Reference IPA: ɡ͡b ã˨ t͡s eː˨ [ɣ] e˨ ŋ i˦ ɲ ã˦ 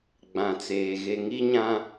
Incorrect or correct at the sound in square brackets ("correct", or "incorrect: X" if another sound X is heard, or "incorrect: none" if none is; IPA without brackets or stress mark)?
correct